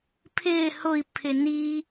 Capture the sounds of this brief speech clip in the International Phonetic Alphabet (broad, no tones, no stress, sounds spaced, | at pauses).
pʰ ɪː h ʊ i̯ pʰ ɪ n i